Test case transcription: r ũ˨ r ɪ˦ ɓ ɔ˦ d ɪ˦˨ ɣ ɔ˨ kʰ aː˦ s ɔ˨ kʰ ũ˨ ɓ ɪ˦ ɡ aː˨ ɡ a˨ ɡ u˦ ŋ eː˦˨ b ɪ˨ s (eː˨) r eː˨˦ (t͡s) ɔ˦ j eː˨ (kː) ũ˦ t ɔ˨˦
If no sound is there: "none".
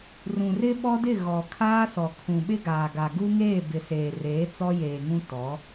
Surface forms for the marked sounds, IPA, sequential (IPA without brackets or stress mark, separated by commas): eː˨, t͡s, ŋ